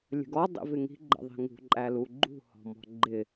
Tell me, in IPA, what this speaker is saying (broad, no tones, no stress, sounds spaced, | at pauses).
lʲ ə̤ ɡ ɔ dˤ ḭ v ɪ ŋ i̤ ɡ͡ǃ ə̰ ðˤ i̤ ŋ ṳ ǃʼ æ l u ɡ͡ǃ ṳ h ɔ̤ m ɔ̤ ɡ͡ǃ ɪ